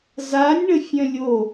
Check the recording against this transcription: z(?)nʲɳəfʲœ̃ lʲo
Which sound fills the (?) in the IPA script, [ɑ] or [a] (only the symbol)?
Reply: a